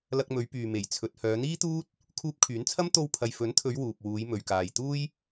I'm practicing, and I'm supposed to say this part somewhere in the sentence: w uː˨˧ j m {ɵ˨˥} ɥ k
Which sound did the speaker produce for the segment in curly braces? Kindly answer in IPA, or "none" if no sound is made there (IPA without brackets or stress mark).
ɵ˨